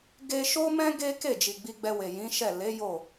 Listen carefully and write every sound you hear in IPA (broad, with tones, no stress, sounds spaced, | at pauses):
ɡ e˧ ʃ o˦ m ɛ̃˦ ɡ e˦ k e˦˨ d͡ʒ i˨ ɡ͡b i˧ ɡ͡b ɛ˧ w e˨ j ĩ˨˦ ʃ ɛ˦˨ l e˨˦ j o˦˨